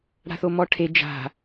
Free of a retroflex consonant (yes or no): no